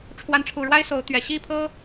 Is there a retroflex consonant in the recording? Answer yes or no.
yes